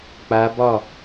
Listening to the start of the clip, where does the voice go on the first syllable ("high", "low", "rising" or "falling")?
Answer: rising